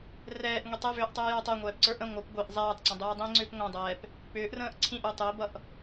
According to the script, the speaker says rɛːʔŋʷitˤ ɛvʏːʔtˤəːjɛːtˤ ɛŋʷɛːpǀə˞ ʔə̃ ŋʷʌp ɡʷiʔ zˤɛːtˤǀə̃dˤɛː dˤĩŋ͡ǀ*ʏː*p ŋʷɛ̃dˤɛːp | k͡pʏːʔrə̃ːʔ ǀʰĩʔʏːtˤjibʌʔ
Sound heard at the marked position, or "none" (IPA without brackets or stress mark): ʏː